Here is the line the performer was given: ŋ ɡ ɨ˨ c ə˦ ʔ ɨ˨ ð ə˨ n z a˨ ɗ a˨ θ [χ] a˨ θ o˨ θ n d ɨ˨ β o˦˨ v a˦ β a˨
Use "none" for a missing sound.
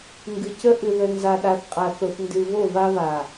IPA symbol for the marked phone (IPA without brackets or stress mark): qʼ